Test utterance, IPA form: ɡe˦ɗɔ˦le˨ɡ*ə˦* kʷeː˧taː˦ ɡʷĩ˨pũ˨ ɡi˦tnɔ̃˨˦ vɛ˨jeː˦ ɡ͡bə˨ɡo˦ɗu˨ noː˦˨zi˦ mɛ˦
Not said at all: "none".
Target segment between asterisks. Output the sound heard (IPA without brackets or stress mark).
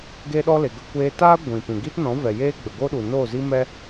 ə˦